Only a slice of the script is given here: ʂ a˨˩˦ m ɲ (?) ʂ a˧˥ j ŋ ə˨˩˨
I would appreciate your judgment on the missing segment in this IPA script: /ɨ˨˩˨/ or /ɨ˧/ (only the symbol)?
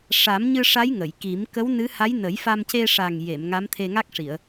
ɨ˧